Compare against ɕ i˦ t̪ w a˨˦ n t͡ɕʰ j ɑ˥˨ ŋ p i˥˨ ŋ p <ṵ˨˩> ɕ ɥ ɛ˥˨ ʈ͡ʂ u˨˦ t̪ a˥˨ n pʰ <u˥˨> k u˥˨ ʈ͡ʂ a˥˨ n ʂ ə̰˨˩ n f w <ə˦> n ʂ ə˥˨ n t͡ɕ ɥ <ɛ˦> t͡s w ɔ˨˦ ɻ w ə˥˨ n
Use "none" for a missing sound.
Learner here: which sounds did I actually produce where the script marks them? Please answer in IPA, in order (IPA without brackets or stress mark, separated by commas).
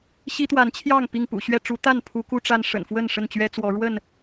ṵ˨˩, u˨˦, ə˥˨, ɛ˦